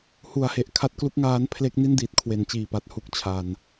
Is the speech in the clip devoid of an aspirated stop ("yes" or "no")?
no